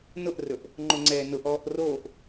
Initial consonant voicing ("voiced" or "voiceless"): voiced